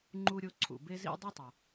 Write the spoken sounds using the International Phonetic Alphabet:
ŋ͡ǃu˧ɾʲo˧ ǀʰṵ˩be˧zḭ˧ dˤu˥tˤa˩

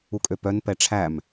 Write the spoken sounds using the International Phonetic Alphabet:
ukʼøpœn pɛʈ͡ʂʰæm

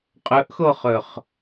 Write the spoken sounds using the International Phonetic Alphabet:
qʼɵʔxoχɵχ

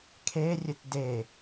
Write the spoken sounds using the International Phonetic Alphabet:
kʰerʲɘt de

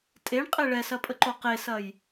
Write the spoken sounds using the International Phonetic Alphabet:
tʼeɳqʼe ɭɛsɐpʼəǃo qesɐj

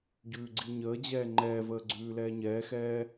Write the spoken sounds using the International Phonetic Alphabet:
ɟʉːɡ͡ǀiɲəːd͡ʑɛː ŋ͡ǃɛːvəː ɡ͡ǀʉːlɛːɲɛːxɛː

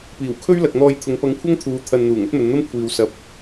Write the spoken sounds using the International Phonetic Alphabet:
piː˨˩wkʰɵ˥ɥlɐ˨k̚n̪ɔː˧j t̪ʰʊ˨˧ŋpɐ˧ŋkʷʰɐ˥ŋt̪ʰuː˨˧ t̪ʰɐ˧nn̪uː˨˩ŋ ɐ˥t̚mɵ˨˧nn̪ɐ˥m kʷʰiː˨wsɐ˨˥p̚

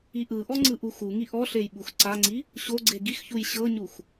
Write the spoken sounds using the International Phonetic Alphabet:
iʔɯʔɔ ŋ͡ǀɯʔuxuŋi ʔɔɬej ɓuxǀaŋ͡ǀi | ɕoɡ͡ǀe ɡixçuj ɕɤɲux

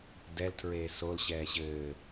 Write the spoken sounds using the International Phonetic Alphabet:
dɛltʰɹeː solɕɛː ɕɘː

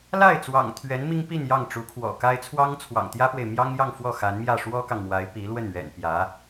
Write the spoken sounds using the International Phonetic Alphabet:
la˥˩ɪ̯ t͡swɑ̰˨˩ŋt̪ʰɥɛ˧˥n mi˥ŋpi˥˧n jɑ˥˩ŋ ʈ͡ʂu˧˥kʰwɔ̰˨˩ka˥ɪ̯ t͡sʰwɑ˥ŋt͡sʰwɑ̰˨˩ŋt̪jä˥pwe˨ɪ̯ mjɑ˥ŋjɑ˥˧ŋ fwɔ˥˩xa˧˥nmjä˥˩ ʂwɔ˥kɑ˨ŋmwa˧˥ɪ̯ pi˧˥lwə˥˩nɥɛ̰˨˩npjä˧˥

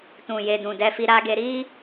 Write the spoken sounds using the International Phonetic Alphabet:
tũ˨je˨ dũ˨dɛ˧fi˧ ɾa˧ɡe˧ɾi˦

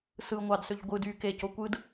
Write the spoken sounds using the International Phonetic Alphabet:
sɯ ŋʷɑdsøʎ ɡʷɯd y keco kʷɯd

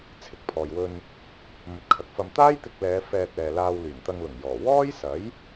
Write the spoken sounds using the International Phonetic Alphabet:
t͡sʰɪ˨˥k̚pʰɔː˨jwɵ˧n | mɵ˨˥t̚kʰɐ˨k̚fɐ˧m t̪aː˥jt̪ɪ˧k̚lɛː˨˧ fɛː˧t̚ɛː˨laː˧w lyː˨˩nt̪ɐ˧ŋlʊ˨˩ŋjɔː˨˩ wɔː˥jsɐ˨˥j

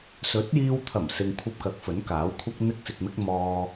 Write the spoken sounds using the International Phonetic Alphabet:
sɵ˨˥t̚jiː˧wt̪ʰɐ˨˩msɪ˨ŋ kʷʰɐ˧p̚kɐ˨˥k̚ fɵ˨˥nkaː˨˥wkʷʰɐ˥k̚ n̪ɪ˥k̚sɪ˧k̚mɪ˥k̚ mɔː˧

